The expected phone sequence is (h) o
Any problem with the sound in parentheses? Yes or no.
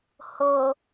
no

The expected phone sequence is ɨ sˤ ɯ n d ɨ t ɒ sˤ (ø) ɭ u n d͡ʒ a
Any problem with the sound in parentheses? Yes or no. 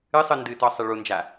yes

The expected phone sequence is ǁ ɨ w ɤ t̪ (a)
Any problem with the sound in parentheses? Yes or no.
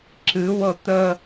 yes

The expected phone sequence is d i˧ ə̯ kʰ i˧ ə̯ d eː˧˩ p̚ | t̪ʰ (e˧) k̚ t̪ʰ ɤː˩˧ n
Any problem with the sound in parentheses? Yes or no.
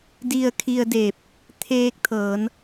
yes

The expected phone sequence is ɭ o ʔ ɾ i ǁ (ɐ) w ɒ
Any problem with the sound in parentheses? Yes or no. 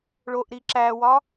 yes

